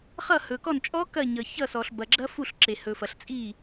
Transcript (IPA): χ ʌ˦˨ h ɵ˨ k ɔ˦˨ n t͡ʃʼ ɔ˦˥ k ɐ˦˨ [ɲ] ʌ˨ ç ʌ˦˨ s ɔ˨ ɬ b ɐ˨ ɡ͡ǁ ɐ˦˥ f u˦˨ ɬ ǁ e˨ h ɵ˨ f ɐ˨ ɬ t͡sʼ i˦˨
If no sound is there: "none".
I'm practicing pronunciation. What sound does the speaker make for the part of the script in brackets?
ɲ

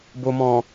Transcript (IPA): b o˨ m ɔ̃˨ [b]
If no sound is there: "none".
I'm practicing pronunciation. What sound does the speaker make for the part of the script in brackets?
none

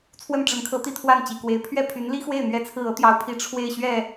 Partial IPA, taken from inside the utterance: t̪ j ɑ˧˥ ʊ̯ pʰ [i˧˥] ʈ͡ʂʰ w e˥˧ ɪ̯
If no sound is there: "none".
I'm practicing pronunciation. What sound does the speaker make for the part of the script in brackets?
i˧˥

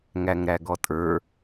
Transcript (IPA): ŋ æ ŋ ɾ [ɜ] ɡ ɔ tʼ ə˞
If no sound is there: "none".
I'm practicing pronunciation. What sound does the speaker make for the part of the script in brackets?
æ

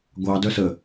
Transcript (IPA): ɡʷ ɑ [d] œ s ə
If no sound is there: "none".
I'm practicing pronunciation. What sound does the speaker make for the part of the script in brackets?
d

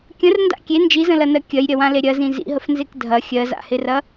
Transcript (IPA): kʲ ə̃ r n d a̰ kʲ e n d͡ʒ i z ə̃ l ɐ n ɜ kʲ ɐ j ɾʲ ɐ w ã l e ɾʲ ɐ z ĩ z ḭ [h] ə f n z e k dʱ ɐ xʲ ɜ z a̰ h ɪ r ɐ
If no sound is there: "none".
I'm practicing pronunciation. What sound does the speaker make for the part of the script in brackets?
ɦ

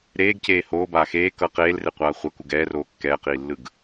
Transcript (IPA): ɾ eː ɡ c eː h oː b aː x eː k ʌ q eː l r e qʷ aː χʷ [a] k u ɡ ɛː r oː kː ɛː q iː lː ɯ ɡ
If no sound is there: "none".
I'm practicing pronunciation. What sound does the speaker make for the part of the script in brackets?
ʌ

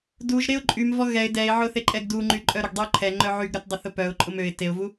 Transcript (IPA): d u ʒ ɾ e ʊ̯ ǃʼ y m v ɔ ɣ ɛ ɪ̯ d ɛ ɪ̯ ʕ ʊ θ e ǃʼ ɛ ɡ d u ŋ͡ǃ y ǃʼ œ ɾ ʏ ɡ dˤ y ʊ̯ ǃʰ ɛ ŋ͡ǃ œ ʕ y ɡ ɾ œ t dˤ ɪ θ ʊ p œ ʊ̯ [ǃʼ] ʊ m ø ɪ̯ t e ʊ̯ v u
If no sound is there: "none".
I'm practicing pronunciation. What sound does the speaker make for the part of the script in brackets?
ǃʼ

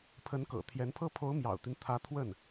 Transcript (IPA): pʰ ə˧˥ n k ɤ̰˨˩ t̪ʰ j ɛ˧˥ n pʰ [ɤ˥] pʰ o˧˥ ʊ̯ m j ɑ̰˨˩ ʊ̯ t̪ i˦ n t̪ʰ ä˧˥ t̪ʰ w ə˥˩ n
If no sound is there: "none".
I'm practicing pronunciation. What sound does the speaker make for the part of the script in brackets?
ɤ˥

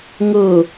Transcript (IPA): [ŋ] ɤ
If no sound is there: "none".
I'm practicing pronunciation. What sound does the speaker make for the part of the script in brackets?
ŋ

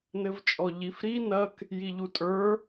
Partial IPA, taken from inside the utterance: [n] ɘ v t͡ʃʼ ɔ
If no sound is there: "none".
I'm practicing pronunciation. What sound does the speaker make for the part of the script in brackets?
n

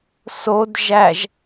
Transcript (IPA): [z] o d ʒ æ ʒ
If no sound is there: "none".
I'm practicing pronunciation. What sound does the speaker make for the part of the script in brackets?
s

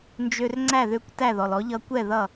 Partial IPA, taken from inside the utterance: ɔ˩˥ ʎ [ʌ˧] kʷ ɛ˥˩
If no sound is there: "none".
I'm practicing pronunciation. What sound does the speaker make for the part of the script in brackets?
ʌ˧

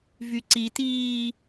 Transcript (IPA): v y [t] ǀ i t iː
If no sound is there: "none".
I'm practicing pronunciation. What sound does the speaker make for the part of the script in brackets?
none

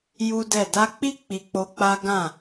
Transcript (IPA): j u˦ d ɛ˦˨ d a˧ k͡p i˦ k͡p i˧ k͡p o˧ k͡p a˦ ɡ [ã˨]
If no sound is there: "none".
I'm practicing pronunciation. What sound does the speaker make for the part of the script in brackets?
ã˦˨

